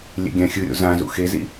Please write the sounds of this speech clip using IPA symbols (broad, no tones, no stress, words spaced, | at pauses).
lʲḛɡʲãxʲɯɾʲo̰ zã zṵxezḭ